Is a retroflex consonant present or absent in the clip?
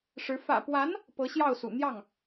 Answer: present